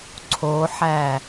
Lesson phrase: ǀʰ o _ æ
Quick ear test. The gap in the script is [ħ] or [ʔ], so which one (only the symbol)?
ħ